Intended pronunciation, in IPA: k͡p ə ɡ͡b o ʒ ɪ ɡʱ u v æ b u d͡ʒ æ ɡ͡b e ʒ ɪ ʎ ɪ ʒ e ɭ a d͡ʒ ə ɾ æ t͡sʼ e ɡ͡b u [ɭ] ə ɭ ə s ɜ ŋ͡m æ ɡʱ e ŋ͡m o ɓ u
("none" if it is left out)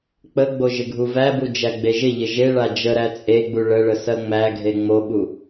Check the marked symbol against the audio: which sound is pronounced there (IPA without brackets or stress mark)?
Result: ɭ